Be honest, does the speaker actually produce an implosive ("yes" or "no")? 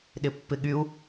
yes